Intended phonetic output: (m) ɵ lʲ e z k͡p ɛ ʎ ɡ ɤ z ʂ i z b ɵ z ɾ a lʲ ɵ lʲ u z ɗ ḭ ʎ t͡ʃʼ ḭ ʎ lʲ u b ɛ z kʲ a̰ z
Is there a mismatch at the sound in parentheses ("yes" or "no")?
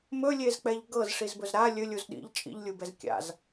no